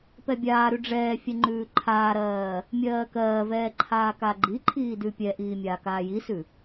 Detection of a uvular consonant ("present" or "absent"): absent